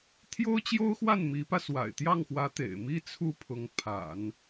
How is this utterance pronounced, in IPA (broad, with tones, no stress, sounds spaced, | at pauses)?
t̪ʰ j o˥ ʊ̯ t͡ɕ j o˥ ʊ̯ x w a˥˩ n m i˧˥ p ä˧ s w a̰˨˩ ɪ̯ t̪ j ɑ˥˩ ŋ x w ä˧˥ t̪ ḛ˨˩ ɪ̯ m i˥ t͡sʰ u˥˩ pʰ ʊ˧˥ ŋ pʰ a̰˨˩˦ n